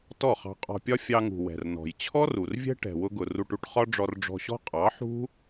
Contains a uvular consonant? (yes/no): yes